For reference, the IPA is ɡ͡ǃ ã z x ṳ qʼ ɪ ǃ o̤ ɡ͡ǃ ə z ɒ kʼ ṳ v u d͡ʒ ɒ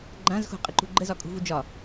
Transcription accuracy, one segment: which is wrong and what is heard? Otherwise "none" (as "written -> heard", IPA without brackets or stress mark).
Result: o̤ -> ṳ